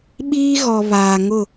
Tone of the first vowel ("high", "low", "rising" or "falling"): high